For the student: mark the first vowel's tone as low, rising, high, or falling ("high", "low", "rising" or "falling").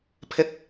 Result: high